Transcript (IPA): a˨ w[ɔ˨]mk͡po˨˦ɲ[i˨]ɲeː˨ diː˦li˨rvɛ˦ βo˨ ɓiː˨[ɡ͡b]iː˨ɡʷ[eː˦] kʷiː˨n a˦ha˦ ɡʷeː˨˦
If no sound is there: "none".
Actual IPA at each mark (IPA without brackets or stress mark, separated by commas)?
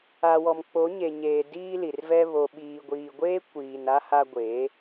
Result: ɔ˨, e˨, ɡʷ, eː˦